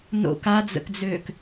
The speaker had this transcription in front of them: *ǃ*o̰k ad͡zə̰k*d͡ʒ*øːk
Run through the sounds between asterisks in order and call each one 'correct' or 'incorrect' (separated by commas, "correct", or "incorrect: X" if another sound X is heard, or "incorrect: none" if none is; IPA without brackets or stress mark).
incorrect: n, incorrect: d͡z